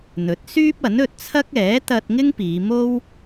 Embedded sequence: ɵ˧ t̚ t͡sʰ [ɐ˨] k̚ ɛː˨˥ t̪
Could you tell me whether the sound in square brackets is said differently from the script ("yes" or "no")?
yes